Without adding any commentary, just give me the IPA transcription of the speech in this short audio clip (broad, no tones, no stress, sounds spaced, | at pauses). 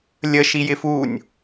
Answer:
lʲ ə ʃ i j ɪ f u nʲ